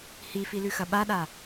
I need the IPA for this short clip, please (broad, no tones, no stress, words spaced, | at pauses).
hifilʉxɐ ɓaɗa